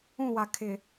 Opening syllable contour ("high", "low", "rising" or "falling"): falling